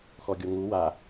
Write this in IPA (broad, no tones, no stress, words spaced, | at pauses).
xɔɡʲoŋu wa